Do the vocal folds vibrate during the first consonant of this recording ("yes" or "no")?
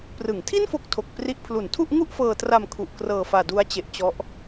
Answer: no